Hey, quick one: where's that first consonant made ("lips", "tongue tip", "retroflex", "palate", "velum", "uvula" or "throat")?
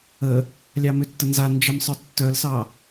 tongue tip